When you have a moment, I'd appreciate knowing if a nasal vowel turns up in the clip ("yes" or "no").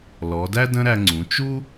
yes